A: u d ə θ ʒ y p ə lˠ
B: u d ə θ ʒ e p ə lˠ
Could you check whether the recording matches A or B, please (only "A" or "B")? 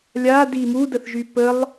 A